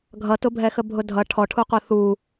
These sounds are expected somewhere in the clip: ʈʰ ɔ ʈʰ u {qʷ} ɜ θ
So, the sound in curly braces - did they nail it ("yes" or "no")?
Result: yes